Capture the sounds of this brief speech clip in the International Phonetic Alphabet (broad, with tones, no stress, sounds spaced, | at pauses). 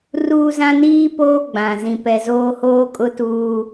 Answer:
r uː˦ z ã˦ n iː˦ p oː˦ ɡ͡b ã˨ z ĩ˨ p ɛ˨ z oː˦ h oː˦ kʼ ʊ˦ t uː˦